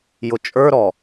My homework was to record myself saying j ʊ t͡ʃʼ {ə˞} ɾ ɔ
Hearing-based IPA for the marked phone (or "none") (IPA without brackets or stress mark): ə˞